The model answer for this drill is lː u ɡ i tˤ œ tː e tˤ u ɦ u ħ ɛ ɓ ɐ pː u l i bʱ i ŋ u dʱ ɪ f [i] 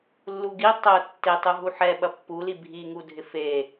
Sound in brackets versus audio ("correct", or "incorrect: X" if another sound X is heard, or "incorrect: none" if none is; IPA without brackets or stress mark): incorrect: e